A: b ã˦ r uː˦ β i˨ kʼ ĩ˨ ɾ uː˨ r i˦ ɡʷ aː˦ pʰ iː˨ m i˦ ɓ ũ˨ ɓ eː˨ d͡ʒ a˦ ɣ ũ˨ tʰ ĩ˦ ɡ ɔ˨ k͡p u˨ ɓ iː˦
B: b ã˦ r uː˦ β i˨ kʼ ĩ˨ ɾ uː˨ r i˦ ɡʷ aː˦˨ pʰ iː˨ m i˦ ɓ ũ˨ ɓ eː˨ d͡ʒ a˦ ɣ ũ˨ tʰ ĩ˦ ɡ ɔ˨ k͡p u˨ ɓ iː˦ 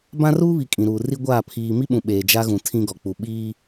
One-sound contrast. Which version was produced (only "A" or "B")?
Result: B